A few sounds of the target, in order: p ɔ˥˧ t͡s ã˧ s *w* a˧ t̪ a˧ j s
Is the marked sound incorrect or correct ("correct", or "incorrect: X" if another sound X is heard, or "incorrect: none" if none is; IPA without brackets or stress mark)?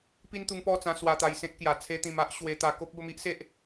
correct